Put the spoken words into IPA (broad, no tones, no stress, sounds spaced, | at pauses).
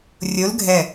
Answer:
rʲ o l ɡʱ ɛ